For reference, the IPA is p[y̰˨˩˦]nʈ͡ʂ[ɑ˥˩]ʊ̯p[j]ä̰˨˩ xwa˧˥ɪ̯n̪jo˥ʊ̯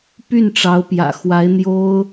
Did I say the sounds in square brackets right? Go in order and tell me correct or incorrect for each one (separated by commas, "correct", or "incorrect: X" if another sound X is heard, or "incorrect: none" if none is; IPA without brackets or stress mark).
incorrect: y˥˩, incorrect: ɑ˧˥, correct